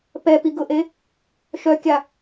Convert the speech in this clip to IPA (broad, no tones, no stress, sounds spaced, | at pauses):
p ɛ p i ɡ ʊ ʔ e | ʃ œ kʲ a